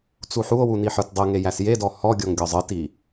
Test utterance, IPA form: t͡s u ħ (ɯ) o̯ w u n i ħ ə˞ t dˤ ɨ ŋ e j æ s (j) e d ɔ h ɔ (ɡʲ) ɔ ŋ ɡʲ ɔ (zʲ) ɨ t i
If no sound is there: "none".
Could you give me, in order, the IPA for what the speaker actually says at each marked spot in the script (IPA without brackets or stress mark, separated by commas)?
u, j, ɡʲ, zˤ